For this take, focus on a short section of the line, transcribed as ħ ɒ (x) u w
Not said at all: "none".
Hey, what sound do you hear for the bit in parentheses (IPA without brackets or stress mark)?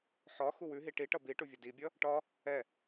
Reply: x